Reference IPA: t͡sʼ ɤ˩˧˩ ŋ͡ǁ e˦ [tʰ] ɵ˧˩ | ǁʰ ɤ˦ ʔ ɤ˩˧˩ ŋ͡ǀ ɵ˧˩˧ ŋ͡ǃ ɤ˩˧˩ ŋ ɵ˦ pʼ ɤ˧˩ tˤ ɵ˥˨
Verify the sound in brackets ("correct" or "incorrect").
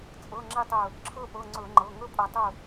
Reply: incorrect